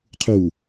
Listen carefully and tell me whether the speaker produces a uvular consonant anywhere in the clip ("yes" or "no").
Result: yes